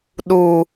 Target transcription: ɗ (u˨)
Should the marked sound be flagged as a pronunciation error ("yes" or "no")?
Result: no